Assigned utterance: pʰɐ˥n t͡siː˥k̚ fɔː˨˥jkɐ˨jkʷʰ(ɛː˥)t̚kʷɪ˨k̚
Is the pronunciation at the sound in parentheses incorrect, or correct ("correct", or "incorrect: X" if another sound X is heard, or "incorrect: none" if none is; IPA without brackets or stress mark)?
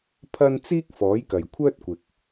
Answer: incorrect: œː˥